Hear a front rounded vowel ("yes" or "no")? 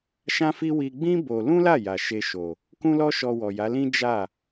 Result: no